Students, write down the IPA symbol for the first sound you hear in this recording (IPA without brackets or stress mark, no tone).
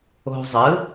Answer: o̤